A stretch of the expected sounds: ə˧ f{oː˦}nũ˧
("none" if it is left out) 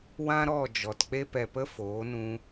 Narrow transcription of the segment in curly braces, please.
oː˨˦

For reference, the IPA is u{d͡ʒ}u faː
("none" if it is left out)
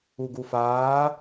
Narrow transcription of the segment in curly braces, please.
ɡ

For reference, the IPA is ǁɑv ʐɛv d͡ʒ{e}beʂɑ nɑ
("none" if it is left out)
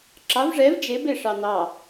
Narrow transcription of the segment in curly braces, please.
e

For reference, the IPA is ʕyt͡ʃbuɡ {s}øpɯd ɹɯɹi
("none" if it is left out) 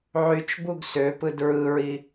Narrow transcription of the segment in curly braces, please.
s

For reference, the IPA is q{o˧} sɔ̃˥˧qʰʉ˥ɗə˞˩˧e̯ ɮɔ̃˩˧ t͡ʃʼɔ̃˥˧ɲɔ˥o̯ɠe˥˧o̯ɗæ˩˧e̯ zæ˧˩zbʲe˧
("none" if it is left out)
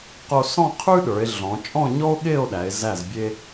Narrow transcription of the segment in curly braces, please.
o˧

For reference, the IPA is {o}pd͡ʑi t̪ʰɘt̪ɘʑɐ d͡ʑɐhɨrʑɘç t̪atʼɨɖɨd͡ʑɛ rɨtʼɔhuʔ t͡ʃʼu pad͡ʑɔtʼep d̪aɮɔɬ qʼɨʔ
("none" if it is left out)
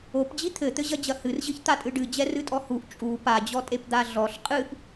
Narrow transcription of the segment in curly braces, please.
o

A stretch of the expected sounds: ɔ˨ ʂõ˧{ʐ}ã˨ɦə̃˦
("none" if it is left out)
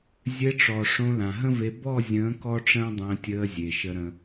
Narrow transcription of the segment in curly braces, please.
l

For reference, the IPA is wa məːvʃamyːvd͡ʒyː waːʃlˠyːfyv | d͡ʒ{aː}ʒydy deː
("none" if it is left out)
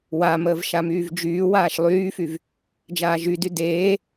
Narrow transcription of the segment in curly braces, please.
aː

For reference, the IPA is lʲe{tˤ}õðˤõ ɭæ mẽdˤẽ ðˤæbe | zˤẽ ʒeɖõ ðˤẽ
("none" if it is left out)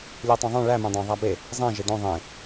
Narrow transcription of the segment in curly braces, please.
tˤ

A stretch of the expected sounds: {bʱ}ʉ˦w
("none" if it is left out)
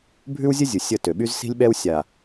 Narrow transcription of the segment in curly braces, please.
bʱ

